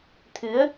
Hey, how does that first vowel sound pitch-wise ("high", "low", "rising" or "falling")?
rising